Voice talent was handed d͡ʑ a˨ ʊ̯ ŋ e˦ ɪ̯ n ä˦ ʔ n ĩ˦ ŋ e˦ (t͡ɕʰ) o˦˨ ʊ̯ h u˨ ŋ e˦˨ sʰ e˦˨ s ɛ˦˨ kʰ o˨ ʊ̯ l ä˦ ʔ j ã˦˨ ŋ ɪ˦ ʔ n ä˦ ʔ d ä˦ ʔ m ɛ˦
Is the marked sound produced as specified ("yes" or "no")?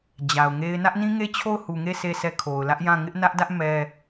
yes